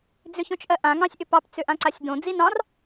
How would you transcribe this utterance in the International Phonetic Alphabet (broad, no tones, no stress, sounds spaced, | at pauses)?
d͡z ʏ ç õ t͡ʃ ʔ ɜ ʔ ã ŋ ɑ̃ sʲ ʔ ʏ p ɑ p t͡s ʏ ʔ ã ǀ a sʲ d õ d͡z i n ɑ̃ r